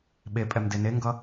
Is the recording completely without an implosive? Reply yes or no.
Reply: no